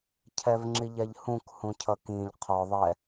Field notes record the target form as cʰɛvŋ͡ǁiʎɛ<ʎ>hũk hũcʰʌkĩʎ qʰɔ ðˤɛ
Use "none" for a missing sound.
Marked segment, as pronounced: ʎ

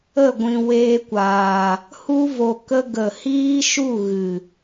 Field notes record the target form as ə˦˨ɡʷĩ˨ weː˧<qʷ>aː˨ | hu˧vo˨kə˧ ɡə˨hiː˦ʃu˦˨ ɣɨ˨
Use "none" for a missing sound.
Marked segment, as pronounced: kʷ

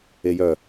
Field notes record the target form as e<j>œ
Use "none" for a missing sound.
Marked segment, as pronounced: j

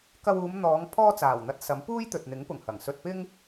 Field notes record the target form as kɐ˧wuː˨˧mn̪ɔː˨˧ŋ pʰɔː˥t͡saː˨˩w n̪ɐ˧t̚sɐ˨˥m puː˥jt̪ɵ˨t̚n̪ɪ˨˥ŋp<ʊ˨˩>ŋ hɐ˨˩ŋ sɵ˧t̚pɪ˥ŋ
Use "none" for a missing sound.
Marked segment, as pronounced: ʊ˨˩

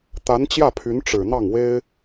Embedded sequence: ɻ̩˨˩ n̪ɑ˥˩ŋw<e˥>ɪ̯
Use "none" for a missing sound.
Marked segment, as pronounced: e˥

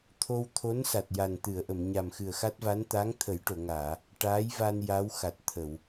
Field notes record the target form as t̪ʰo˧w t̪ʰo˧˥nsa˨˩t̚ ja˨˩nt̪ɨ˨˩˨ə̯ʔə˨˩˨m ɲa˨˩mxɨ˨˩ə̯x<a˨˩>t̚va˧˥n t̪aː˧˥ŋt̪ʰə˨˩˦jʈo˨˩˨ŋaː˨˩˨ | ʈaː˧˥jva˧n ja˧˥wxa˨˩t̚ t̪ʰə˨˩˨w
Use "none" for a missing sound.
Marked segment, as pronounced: a˦˥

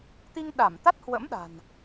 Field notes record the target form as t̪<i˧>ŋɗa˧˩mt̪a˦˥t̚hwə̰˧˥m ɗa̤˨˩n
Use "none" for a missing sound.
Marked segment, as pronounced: i˧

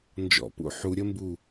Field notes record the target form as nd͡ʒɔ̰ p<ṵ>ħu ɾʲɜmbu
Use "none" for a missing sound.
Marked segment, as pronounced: ṵ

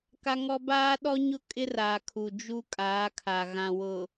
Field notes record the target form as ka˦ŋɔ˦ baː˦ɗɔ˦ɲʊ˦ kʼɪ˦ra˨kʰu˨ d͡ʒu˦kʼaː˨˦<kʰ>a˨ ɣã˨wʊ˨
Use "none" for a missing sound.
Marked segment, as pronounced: kʰ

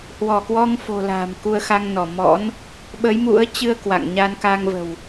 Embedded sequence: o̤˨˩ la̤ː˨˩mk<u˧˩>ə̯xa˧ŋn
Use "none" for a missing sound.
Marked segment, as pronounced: u˧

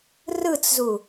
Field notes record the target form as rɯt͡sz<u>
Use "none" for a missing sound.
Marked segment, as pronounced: u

